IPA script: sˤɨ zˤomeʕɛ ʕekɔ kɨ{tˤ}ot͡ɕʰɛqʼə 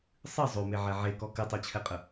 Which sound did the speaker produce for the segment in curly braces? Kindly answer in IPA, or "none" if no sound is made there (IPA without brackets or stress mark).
tˤ